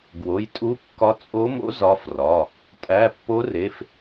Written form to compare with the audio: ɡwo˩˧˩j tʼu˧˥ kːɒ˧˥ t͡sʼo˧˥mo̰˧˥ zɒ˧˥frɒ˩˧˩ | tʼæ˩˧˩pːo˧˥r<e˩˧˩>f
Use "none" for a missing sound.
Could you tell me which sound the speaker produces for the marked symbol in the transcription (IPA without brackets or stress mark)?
e˩˧˩